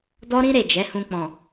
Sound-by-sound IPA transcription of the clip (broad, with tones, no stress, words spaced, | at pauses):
dɔ˦ɾĩ˦ ɾe˦˨d͡ʒɛ˨˦hũ˧ k͡pɔ̃˨